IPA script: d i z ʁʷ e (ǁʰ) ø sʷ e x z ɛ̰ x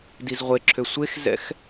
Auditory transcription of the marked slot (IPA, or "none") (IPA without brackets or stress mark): ǁʰ